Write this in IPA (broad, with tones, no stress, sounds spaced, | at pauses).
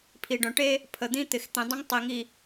pʰ i˨ ɖ œ̃˨ ʈ e˦ | pʰ ə˨ d̪ ĩ˦ t̪ ɪ˨ x t̪ ĩ˨ dˤ ə̃˦ ŋ tˤ i˨ ŋ i˨